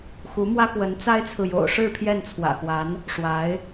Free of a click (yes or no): yes